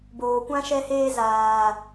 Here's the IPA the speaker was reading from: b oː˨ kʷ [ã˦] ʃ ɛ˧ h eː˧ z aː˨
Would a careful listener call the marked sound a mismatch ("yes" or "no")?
no